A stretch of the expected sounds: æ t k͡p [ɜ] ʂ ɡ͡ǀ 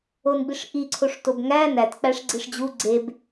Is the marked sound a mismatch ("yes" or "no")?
yes